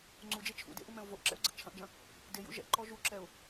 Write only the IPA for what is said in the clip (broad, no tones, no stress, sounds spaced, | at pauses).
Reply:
ŋ͡ǀ u d͡ʒ e t͡ʃʰ ṵ d ḛ ʔ u m ɛ̃ ʊ̯ v o ʔ ǁ ɛ̰ ʊ̯ ɡ͡ǀ ɘ ʔ t͡ʃʰ ɐ̃ ʔ d͡ʒ ɐ̃ | d e j ṵ ʒ ɛ̰ ǃ ɔ ʒ u ǁ ɛ ʊ̯